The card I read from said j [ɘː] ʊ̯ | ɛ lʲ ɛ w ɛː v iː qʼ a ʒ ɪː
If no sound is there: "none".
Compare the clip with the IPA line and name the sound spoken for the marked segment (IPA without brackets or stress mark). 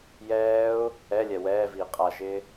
ɛː